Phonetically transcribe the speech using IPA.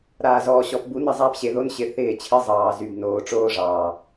ɾ aː˨ z ɔː˨ ɕ ɔ˨ p b u˨˦ n ɘ˦˨ zˤ aː˦ p ɕ e˨ ð o˦ n ɕ ɪ˨ θ ɪː˦˨ t͡ɕʰ ɘ˦ zˤ ɑː˨ z y˨ b n oː˨ ʈ͡ʂ oː˦ ʐ ɑː˨

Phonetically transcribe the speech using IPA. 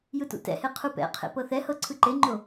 j ɯ t ṵ t ɛ̰ h e qʰ u p ɛ̰ qʰ ḛ p ɤ θ ɛ h ɤ ǀʰ ɯ ǃ e ŋ͡ǃ o

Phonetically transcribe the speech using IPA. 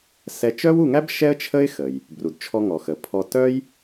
s ɛ˧ t͡ʃ œ˥ w u˧ ŋ æ˥ b ʃ ɛ˥ ə̯ t͡ʃʰ ə˥ ɪ̯ x ə˩ j | b r u˩ d t͡ʃʰ ɔ˧ ŋ ɔ˩ x ə˩ pʰ ɔ˧ t œ˥ j

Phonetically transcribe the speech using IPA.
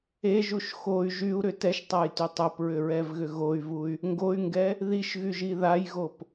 e ʒ u ʃ x o y̯ ʒ y u̯ ɾ ʏ t ɛ ʃ tˤ a j t y tˤ o p ɹ ʏ ɹ ɛ v ɣ ʏ ɣ o y̯ v u y̯ | ŋ ɡ o y̯ ŋ ɡ ɛ | ð i ʃ ɣ y ʒ i ð a j ɣ o p

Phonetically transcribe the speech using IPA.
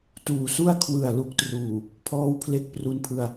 t uː˨˩ s u˥˩ a̯ kʰ w ɯ˨˩ a̯ l u˨˩ k̚ t r uː˨˩ | pʰ ɔː˦˥ w pʰ l e˦˥ k̚ p r u˧ n pʰ ɯ˧ a̯

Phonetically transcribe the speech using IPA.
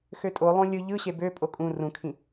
x ø tʼ o lˠ õ lʲ ɯ ʎ ɯ ɕ e b ø pʼ o kʼ ũ r ũ kʰ ĩ

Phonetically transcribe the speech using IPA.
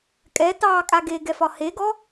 kʼ ɛ t ɑː kʼ a ɡ e ɡ ɛ f ɒ h e ɡ ɔ

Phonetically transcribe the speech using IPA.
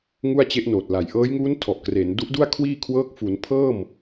ŋ u˥˩ a̯ t͡ɕ e˦˥ ʔ n oː˨˩ t̚ l a˨˩ j ʔ ɤː˦˥ j ŋ uː˦˥ n tʰ ɔ˨˩ ʔ k r e˩˦ n d u˦˥ ʔ d u˥˩ a̯ kʰ w iː˥˩ kʰ w ɤː˦˥ k̚ f u˩˦ n pʰ ɤː˥˩ m

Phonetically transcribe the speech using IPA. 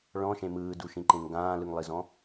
ɭ ɔ̃ ʃ ẽ m ɯː d u ʃ ĩ ǃ ẽ ŋ ɡ ãː l ɯ ŋ lˠ i z ɔ̃

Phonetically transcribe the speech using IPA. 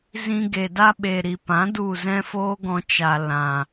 z ĩ˧ ɡ e˨ d a˦ ɓ e˨ ɾ i˨ p ã˨˦ d u˦˨ z ɛ̃˦ f oː˦ ɡ ɔ̃˧ t͡ʃ a˨ l ã˨

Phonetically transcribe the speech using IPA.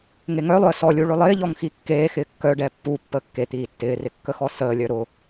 ŋ e ŋ œ lˠ ʊ ə̯ s ɔ lʲ u ɭ ʊ lˠ ɪː ʎ ɔ ŋ x i kː eː x ɪː kː œ ɖ ɛ pː u pː əː kː e t̪ iː tː ɪː r ɪ kː ə x ɔ s əː lʲ œ ɾ ʊ

